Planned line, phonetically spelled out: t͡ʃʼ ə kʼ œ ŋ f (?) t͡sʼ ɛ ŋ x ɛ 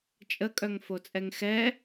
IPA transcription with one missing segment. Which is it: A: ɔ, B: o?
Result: B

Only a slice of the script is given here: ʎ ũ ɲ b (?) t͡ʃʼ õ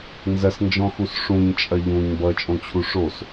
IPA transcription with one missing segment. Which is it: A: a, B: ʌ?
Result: B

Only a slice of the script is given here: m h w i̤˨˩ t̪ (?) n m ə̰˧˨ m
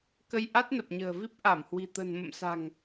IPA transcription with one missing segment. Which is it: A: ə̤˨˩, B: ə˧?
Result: A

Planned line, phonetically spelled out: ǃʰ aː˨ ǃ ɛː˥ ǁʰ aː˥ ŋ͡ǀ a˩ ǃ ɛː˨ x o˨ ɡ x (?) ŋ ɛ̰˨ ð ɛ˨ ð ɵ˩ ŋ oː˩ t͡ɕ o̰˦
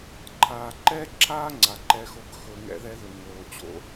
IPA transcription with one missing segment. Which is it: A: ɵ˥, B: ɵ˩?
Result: B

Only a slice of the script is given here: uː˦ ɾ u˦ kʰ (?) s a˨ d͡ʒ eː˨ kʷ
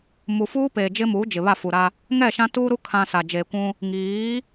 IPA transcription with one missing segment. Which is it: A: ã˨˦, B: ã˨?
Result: B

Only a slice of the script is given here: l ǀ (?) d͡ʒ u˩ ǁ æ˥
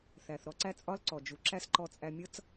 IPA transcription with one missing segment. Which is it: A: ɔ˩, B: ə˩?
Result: A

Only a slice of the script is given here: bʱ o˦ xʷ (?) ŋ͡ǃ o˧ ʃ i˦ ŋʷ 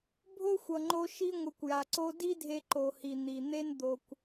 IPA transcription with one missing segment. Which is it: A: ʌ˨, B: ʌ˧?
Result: A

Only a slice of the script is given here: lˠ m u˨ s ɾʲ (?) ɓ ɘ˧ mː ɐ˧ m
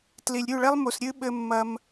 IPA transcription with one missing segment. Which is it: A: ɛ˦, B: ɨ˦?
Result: B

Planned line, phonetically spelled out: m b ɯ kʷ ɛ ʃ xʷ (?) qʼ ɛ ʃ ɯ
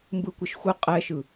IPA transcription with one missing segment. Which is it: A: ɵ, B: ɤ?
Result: B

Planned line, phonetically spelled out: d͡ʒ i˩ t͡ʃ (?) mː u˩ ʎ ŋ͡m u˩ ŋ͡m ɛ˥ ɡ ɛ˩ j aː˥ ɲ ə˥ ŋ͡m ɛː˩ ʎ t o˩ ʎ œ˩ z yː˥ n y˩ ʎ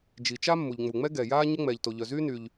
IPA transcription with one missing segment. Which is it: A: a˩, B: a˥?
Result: B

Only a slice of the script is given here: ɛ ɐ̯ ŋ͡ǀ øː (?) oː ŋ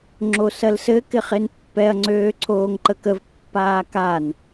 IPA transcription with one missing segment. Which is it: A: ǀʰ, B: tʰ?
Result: A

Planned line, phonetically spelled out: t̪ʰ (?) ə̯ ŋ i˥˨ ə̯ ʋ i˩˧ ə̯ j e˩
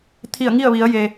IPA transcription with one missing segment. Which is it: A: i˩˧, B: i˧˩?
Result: B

